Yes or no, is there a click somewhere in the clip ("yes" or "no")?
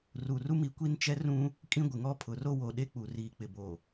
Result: no